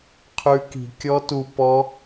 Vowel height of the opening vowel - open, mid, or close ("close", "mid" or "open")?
close